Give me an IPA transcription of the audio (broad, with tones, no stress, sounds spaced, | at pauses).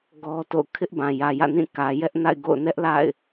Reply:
ɡ ɔ˦ t o̰˦˨ ʊ̯ kʰ ɪ˦ ʔ b ã˨ j ä˨ j ä̰˦˨ n ĩ˦˨ k ä˨ j ɛ˦ ʔ n a̰˦˨ ɪ̯ ɡ o̰˦˨ ʊ̯ n ɛ˦ ʔ l a̰˦˨ ɪ̯